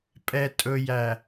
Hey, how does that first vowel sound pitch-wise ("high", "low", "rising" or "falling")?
low